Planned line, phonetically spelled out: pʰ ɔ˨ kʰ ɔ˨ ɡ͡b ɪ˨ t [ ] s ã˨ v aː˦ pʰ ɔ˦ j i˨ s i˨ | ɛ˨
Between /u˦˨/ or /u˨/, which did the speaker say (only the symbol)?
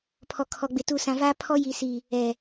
u˨